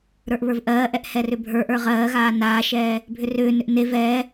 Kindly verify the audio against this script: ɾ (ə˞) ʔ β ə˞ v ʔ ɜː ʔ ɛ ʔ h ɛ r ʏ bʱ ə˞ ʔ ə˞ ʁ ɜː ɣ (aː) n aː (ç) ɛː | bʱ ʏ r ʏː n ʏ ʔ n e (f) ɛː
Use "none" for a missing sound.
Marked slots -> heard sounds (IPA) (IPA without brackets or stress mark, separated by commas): ə˞, aː, ʃ, v